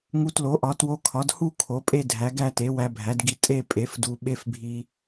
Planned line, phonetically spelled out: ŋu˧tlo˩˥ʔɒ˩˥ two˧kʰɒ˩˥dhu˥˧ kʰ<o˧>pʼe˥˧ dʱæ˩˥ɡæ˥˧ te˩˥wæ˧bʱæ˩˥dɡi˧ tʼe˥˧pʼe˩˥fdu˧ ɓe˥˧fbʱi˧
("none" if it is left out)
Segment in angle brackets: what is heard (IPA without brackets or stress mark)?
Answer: o˩˥